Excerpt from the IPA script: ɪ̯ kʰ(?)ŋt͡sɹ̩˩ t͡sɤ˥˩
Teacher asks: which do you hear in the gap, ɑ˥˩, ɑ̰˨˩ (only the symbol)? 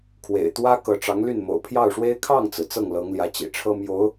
ɑ˥˩